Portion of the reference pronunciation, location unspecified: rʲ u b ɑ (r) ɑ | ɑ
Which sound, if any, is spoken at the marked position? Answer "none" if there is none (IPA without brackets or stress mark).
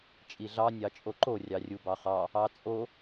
χ